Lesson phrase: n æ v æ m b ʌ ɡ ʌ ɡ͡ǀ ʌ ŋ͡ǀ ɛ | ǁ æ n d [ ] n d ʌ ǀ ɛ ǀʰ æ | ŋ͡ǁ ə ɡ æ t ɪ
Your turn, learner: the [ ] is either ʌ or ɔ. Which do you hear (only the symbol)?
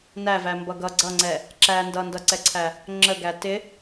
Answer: ʌ